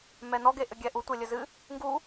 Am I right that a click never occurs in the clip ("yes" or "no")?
yes